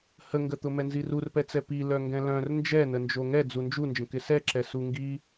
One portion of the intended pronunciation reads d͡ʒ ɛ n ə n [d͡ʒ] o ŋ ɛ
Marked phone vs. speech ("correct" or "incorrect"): correct